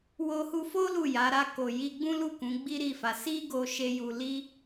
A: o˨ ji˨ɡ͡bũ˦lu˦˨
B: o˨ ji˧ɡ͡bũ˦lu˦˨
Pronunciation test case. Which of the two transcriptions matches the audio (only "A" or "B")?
B